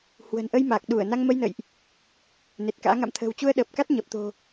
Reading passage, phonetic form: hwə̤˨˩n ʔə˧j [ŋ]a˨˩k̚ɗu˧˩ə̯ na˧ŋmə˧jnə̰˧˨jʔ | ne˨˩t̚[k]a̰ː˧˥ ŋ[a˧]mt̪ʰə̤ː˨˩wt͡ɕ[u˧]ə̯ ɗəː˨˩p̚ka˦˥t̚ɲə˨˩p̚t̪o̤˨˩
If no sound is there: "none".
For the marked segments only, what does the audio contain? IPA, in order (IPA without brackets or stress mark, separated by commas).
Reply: m, k, a̰˧˨, u˧